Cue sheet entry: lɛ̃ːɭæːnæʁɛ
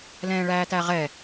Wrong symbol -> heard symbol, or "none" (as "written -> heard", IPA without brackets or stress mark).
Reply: n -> t